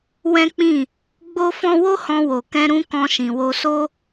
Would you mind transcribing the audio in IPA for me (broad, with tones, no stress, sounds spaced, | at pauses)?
w ɛ̃˦ k͡p ĩ˦˨ | ɡ͡b o˦ f ɔ̃˦ w o˦ h ɔ̃˧ w o˨ k ɛ̃˧ ɾ ũ˧ k ɔ̃˧ ʃ ĩ˨ w o˧ s o˦